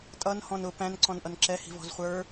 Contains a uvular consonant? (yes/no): yes